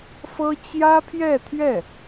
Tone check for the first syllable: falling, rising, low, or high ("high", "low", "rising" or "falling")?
high